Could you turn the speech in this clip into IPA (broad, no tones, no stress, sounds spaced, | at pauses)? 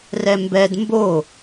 r ɛ m b ɛ d m b o